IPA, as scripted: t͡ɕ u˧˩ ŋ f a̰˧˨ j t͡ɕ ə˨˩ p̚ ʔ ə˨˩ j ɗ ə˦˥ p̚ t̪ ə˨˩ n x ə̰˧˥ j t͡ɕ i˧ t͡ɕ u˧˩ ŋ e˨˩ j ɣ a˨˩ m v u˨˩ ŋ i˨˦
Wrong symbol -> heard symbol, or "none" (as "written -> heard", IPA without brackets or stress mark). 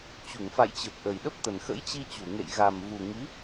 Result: e˨˩ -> ḛ˧˨